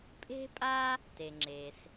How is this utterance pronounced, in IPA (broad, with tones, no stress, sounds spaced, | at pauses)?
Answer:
pʼ e̤˥ pʼ a˥ | t e˩ ŋ͡ǁ e˩ s